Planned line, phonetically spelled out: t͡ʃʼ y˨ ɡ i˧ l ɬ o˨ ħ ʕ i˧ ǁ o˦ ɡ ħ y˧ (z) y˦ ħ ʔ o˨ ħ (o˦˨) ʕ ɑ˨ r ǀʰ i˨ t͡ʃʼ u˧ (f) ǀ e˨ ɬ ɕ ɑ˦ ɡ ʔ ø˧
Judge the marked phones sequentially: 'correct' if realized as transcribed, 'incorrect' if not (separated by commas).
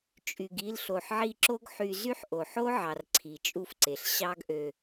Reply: correct, incorrect, correct